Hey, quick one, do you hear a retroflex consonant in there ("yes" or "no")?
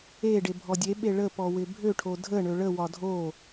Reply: yes